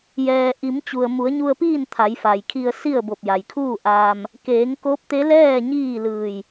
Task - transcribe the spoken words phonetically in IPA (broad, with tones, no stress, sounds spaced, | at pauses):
j ɛː˩ ʔ i˩˧ m t͡ɕ u˩ ə̯ m u˩˧ ə̯ ɲ u˧ ə̯ p iː˥˨ n t̪ʰ a˩˧ j f a˩ j kʰ i˧ ə̯ s i˥˨ ə̯ b o˧˩ p̚ j a˩ j kʰ uː˥˨ ʔ aː˧ m | k eː˩˧ ŋ k o˧˥ p̚ t̪ e˧˥ l ɛː˥˨ ɲ iː˥˨ l ɯː˧˩ j